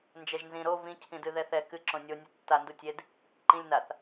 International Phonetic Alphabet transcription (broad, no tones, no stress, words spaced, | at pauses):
nd͡ʒɛʒnzĩ ɾo vĩ cʰĩdɨðɛθɛ kɨ ǁõnʲo nʲɨtːa ndutʲed | ǃĩlʲ naθ